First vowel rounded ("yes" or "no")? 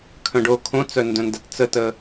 yes